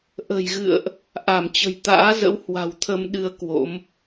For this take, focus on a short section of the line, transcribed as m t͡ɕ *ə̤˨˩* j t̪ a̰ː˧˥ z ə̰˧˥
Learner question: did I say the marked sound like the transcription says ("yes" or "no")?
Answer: yes